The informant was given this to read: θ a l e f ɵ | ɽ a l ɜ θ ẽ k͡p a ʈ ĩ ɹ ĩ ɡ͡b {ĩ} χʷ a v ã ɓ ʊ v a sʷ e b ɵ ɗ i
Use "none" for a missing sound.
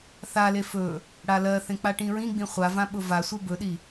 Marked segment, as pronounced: ĩ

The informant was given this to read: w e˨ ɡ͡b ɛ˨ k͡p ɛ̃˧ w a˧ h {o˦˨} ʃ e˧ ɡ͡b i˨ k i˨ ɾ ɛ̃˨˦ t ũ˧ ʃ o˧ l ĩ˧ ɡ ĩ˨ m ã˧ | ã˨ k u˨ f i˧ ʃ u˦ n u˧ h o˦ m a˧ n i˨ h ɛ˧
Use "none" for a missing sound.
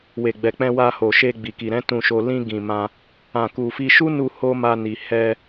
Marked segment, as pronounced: o˨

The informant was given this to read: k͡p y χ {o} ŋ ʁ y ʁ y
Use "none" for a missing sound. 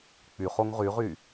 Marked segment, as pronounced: o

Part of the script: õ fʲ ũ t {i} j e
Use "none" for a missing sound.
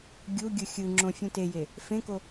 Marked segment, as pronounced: e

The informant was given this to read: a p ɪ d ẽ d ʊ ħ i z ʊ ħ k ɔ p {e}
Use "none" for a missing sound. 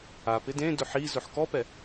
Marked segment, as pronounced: ɛ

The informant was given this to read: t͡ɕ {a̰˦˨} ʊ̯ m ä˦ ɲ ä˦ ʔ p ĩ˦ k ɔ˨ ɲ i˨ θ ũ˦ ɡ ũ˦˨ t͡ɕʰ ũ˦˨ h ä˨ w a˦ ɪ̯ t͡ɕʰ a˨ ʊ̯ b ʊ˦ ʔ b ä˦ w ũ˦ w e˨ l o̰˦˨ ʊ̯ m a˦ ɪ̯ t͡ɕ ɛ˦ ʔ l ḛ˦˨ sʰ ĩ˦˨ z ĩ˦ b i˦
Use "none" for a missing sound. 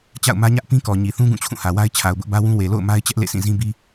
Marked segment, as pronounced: a̰˦˨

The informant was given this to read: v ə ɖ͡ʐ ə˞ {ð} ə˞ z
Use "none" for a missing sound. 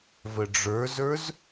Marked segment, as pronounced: z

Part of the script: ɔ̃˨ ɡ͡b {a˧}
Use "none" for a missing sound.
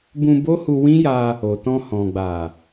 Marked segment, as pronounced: a˨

